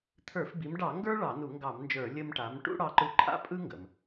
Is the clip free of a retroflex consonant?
no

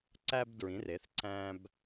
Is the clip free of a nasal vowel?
no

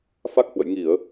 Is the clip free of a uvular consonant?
yes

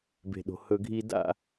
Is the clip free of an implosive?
no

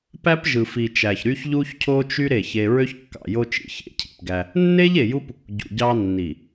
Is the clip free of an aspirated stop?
no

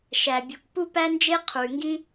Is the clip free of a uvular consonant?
no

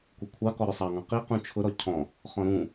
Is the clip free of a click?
yes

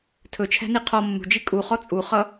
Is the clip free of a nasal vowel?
yes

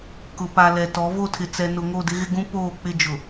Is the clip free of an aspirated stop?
no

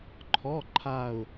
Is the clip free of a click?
no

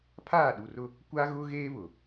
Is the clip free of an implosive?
no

